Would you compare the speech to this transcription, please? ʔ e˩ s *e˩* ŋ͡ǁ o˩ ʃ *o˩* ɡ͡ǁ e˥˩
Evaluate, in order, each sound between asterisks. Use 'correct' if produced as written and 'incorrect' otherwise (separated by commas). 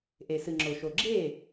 incorrect, correct